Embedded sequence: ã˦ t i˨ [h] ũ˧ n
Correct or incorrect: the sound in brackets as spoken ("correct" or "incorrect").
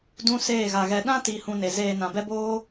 correct